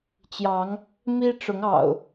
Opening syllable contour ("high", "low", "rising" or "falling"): rising